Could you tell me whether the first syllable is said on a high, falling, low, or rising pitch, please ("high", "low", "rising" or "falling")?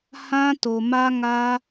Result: high